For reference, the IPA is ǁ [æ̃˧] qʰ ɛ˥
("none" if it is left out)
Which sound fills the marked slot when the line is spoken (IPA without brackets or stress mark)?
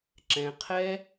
ɛ̃˧